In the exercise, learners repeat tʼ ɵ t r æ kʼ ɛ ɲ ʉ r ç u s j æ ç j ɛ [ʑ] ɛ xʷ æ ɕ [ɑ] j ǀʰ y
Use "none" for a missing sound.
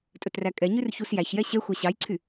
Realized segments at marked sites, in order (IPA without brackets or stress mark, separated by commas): ɕ, ɑ